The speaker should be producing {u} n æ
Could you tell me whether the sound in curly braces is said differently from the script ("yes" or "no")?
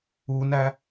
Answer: no